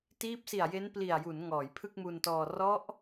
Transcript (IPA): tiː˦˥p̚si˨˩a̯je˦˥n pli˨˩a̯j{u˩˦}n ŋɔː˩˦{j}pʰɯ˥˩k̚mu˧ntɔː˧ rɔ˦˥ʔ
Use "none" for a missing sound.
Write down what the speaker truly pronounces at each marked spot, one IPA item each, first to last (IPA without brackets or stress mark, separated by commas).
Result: u˩˦, j